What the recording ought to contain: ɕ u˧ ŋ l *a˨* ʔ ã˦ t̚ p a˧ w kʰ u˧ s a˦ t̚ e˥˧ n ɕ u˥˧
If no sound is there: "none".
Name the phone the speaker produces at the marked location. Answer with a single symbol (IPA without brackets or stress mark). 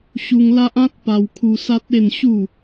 a˦